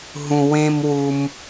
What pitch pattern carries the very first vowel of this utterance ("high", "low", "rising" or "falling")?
high